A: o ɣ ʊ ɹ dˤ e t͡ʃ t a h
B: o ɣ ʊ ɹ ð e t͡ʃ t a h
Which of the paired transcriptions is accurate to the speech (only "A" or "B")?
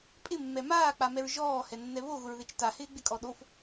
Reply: B